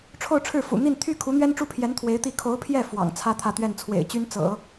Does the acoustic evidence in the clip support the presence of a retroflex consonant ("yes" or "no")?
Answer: yes